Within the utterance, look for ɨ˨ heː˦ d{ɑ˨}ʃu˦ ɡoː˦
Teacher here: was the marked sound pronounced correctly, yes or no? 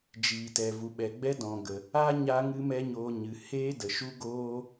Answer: no